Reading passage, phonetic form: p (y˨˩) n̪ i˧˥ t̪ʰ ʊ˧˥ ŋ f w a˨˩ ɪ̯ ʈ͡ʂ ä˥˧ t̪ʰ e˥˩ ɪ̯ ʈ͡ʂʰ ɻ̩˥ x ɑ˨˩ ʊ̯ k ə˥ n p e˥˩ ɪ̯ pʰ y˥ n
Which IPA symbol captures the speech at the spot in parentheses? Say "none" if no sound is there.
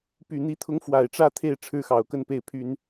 y˨˩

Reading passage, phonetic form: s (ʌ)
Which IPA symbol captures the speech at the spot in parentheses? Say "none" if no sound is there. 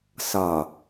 ʌ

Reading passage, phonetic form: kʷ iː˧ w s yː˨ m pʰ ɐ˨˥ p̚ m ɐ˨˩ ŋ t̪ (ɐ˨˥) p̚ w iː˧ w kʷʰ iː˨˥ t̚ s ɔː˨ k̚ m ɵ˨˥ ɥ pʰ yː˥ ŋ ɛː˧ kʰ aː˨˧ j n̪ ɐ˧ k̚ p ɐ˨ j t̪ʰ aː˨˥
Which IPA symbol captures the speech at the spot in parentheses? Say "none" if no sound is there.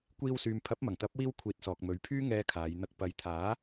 ɐ˨˥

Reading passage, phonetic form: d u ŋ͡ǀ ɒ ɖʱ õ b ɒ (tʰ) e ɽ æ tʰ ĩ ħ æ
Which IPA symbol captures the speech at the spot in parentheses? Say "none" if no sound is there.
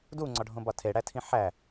tʰ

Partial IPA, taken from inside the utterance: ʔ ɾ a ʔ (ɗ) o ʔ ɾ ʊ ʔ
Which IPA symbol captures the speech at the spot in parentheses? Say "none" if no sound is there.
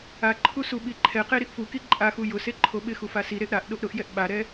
ɗ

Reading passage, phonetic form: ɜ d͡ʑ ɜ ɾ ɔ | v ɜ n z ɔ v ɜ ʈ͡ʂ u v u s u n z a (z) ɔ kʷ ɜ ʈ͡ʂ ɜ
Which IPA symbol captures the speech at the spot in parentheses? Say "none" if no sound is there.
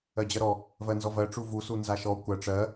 ʃ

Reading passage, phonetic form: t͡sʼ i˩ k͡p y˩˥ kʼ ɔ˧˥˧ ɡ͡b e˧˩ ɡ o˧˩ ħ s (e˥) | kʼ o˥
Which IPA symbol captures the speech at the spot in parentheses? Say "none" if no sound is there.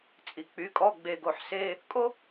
e˧˥˧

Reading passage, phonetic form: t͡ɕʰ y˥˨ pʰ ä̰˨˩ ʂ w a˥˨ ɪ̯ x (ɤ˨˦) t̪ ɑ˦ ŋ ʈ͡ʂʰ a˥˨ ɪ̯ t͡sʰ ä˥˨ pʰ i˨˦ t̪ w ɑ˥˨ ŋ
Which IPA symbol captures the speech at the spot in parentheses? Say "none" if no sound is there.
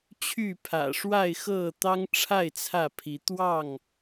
ɤ˥˨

